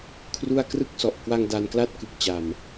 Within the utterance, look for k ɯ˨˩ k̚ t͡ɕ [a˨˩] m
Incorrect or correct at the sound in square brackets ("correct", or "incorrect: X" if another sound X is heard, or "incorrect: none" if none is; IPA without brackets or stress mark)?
correct